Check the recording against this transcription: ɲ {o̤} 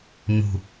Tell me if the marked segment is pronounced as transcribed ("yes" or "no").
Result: no